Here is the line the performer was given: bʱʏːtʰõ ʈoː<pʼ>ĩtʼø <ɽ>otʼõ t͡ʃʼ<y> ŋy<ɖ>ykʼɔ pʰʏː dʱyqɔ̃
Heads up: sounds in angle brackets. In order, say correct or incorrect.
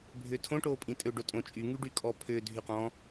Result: correct, incorrect, correct, correct

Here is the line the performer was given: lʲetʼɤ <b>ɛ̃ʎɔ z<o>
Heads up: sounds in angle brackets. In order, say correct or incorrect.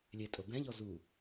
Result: correct, incorrect

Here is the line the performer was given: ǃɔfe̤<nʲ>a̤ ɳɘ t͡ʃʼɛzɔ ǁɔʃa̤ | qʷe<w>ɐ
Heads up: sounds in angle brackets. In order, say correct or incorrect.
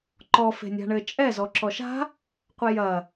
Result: correct, incorrect

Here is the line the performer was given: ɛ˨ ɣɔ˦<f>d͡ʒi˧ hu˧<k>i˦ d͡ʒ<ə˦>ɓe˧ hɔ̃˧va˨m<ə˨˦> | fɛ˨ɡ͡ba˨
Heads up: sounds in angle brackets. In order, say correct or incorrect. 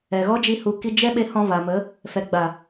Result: incorrect, correct, incorrect, correct

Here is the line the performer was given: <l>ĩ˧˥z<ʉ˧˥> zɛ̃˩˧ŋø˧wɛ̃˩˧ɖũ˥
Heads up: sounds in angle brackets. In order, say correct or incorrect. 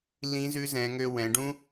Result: correct, correct

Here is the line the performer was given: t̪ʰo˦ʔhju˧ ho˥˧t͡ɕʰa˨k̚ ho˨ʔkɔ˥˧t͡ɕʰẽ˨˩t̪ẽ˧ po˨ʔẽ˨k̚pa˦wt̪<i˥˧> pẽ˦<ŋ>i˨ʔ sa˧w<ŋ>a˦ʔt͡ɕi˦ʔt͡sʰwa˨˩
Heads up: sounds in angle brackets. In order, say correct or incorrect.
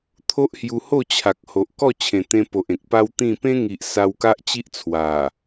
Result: incorrect, correct, incorrect

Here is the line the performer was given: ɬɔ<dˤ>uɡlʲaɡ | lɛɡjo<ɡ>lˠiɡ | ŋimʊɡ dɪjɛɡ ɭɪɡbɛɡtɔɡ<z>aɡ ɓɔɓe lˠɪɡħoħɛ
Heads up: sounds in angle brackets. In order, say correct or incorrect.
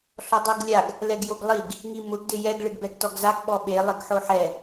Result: correct, correct, correct

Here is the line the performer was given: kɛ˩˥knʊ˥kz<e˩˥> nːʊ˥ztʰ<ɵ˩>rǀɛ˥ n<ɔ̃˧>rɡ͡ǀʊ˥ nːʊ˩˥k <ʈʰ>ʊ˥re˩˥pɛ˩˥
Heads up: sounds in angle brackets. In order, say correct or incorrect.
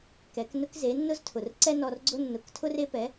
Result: correct, incorrect, incorrect, incorrect

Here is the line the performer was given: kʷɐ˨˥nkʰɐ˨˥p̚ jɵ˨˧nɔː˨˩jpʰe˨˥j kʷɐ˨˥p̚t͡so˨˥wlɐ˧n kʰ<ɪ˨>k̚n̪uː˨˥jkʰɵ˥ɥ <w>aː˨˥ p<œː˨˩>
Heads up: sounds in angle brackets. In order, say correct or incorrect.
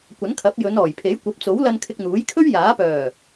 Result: incorrect, incorrect, correct

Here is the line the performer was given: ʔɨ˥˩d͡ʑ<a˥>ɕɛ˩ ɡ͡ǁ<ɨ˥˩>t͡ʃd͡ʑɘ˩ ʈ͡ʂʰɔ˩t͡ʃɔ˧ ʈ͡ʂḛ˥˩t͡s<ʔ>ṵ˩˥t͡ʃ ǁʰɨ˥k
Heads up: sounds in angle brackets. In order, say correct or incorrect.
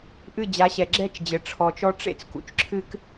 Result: incorrect, incorrect, incorrect

